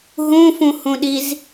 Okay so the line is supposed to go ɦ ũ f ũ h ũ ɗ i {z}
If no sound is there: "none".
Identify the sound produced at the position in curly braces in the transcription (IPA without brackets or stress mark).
z